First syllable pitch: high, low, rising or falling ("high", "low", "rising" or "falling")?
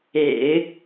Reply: low